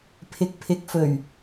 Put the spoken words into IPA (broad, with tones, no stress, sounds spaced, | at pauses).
pʰ ɪ˨ k̚ pʰ ɪ˨ k̚ f ɵ˨˩ ɥ